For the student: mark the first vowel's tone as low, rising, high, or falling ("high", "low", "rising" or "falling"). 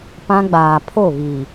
high